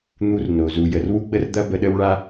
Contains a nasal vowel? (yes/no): no